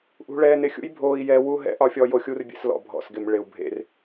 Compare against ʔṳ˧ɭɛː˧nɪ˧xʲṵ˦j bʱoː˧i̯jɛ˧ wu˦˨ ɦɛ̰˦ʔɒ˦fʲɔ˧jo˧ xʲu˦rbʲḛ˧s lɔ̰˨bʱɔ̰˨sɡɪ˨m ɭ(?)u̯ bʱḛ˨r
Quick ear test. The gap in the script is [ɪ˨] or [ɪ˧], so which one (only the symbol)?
ɪ˨